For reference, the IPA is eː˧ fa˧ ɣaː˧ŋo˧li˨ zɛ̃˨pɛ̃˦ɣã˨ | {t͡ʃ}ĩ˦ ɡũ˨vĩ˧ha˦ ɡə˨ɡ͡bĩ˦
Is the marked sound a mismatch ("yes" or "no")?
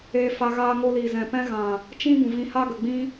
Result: no